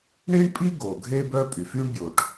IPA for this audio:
ɳi˥ɳpʼi˥ ɡo˩ɡʱe˥bœ˥pʼy˩f y˥ɳbʲo˩ʈ

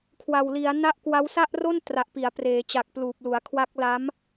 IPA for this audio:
kʰwa˨˩wli˩˦a̯ na˦˥ʔkwa˦˥w sa˥˩ʔro˥˩n tra˨˩ʔpi˩˦a̯ preː˩˦ t͡ɕa˨˩k̚pluː˨˩p̚lu˩˦a̯kʰwa˦˥k̚ la˦˥m

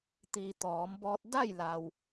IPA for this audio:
t̪iː˩ t̪ɔː˩˧mbɔː˧t̚ da˥˨jla˩w

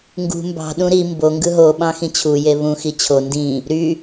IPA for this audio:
ŋɡṳ mbɑ̤ ɗũɾi mbo ŋɡɯɦo ɓɑ̃xĩt͡ɕʰu jeβũ xit͡ɕʰo ndĩ | ɾy

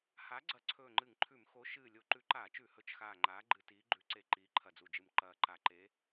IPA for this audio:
ha˨˥ ɡ͡ǀɐ˧˩ǀʰɵː˧˩ŋ͡ǃɨ˧˩˧ŋǃʰʉ˧˩˧m xo˨˥ ʃɨː˧˩ lʲo˧˩˧ǃʉ˨˥ǃaː˧˩˧t͡ʃʉ˧˩˧ hɵ˨˥t͡ʃxaː˧˩ŋ͡ǃaː˨˥ ɡ͡ǃɨ˧˩˧tiː˨˥ɡ͡ǃʉ˨˥ǀe˧˩ ǃiː˨˥ǃʰɐ˧˩d͡zu˧˩d͡ʒɨ˧˩m ǃɐː˧˩ǃa˧˩˧ ǃe˨˥

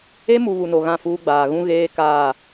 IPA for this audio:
e˦mu˨ βu˨no˨ɣã˦˨ fuː˦ɡ͡baː˨ ɣũ˦ɣeː˦ kaː˦˨

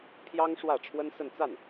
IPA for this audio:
pʰjɑ˥ŋʂwä˥˩ʈ͡ʂʰwə˥n sə˥˧nt͡sa˥˩n

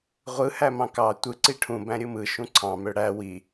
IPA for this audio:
ʁʷɯ hæmɑ̃kɑ tʷɯ ǀiʈʰũ bæ̃ɾʲɯmɯ ʃũǀʰɑ̃ møɽæ wi

